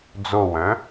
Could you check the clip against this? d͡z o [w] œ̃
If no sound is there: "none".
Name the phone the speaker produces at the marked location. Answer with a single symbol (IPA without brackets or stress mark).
w